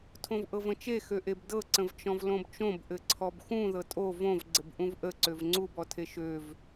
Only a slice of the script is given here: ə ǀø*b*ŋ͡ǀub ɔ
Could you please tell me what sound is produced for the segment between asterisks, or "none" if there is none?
v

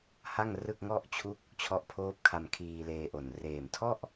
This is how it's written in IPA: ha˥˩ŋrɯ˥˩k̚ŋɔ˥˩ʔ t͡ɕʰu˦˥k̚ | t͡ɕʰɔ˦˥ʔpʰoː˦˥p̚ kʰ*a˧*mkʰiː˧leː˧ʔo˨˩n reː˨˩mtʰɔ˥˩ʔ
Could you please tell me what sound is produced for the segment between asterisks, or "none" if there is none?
a˧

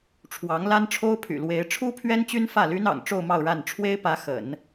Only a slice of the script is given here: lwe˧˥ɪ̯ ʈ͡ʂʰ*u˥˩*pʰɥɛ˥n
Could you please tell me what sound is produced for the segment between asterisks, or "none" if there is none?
u˥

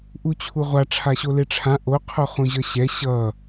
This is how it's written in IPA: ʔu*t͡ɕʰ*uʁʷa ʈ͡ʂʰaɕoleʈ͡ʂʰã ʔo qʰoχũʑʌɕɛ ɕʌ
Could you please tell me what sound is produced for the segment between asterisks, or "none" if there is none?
t͡ɕʰ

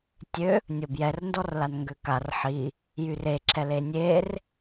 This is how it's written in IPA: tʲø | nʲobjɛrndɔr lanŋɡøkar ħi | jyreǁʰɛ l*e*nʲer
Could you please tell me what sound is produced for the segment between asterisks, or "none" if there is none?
e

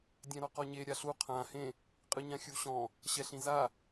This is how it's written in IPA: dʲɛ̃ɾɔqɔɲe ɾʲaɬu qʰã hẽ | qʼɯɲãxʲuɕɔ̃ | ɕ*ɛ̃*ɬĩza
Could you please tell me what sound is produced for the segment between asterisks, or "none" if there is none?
ɛ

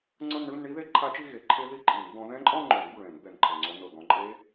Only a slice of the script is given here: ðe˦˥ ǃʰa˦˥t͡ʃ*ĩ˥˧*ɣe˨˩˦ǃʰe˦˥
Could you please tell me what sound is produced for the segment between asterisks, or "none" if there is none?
i˥˧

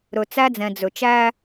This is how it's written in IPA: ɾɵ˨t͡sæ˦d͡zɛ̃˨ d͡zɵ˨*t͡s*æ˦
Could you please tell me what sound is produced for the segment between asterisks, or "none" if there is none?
t͡ʃ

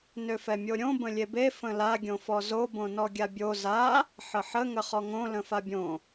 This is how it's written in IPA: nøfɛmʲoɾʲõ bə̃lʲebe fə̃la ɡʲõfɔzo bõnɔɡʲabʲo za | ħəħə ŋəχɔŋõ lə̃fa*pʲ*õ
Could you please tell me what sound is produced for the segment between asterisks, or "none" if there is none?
bʲ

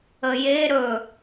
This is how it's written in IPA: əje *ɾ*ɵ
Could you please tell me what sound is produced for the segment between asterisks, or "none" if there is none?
ɾ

